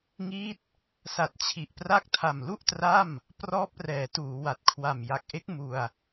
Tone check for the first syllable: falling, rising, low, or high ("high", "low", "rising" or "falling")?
falling